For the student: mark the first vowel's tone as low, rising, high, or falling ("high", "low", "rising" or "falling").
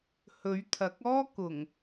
rising